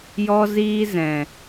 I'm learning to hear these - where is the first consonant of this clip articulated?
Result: palate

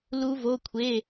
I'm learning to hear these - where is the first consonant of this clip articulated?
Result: tongue tip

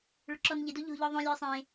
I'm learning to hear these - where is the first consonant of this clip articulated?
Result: retroflex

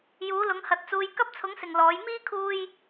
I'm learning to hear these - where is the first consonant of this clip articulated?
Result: palate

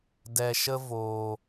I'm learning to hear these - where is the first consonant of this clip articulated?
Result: tongue tip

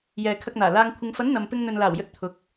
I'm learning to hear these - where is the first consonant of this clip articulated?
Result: palate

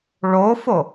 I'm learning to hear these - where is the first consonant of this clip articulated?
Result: retroflex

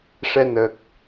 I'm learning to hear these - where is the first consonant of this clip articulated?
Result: retroflex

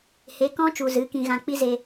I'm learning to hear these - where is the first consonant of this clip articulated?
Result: throat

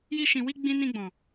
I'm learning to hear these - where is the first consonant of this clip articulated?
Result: palate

